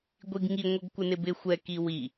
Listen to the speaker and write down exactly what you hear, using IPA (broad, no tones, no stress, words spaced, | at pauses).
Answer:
ɡʷiɡŋi ŋʷʌɡkʷɪnɪbɪ xʷɛ kiwi